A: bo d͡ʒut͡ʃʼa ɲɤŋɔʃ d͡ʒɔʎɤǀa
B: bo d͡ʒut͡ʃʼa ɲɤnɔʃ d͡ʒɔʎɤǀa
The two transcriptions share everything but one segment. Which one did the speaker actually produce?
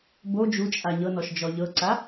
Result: B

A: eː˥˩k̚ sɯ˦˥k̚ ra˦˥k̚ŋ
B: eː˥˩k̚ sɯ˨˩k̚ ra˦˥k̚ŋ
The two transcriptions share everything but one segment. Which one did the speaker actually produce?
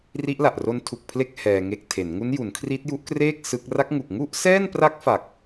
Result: A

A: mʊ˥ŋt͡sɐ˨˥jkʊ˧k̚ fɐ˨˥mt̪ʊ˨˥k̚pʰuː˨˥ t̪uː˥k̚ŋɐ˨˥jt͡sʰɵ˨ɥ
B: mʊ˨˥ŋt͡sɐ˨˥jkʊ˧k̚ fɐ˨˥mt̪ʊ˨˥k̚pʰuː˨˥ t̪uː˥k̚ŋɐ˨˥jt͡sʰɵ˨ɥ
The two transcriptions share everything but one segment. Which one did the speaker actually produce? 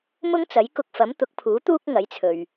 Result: A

